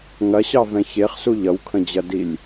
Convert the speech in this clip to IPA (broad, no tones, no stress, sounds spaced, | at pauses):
ŋ ɐ ɕ ɑ v ɛ̃ ç e χ s u ʎ ʌ w kʰ ə̃ d͡ʑ ɐ d i lʲ